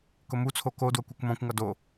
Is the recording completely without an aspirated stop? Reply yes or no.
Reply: no